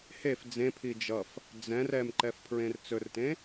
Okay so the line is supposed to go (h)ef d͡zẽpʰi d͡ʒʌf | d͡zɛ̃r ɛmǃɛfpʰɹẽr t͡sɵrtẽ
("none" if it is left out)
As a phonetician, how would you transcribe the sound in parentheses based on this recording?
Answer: h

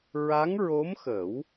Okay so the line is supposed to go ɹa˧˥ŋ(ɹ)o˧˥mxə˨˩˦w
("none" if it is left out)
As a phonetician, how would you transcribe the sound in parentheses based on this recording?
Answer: ɹ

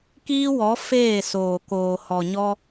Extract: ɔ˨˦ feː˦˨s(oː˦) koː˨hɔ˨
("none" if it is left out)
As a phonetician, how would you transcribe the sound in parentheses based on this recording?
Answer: oː˨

